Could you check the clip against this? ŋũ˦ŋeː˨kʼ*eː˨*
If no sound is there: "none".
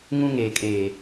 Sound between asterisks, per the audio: eː˨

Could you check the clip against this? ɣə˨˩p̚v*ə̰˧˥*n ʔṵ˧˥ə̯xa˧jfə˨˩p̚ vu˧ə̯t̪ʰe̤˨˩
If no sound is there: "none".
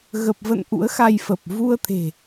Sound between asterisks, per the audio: ə̰˧˨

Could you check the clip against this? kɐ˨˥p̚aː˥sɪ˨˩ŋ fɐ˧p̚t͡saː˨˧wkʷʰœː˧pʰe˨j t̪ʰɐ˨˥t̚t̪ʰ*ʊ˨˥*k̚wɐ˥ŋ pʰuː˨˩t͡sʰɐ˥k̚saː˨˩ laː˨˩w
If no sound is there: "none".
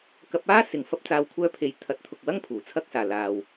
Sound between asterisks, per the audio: ʊ˨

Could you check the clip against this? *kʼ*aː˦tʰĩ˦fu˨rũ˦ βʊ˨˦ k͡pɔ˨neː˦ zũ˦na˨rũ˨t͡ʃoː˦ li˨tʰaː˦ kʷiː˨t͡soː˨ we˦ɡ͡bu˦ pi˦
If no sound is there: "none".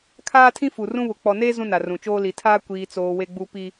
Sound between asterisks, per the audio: kʰ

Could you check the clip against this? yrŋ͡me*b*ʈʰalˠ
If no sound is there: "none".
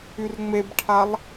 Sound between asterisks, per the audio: b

